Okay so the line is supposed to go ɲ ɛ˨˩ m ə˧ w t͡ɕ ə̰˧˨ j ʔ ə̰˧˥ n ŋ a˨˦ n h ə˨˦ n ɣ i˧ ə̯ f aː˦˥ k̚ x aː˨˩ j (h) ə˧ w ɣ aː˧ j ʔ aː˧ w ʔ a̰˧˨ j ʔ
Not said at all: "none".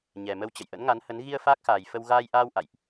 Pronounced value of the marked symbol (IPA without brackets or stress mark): f